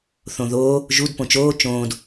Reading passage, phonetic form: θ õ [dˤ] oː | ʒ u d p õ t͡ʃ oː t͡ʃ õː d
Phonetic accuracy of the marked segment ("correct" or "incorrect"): incorrect